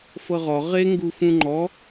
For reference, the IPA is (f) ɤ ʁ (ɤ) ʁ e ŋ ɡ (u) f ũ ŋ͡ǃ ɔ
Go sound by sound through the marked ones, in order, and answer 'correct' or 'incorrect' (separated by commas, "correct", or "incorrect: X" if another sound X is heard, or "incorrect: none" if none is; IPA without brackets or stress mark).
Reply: correct, incorrect: ɔ, correct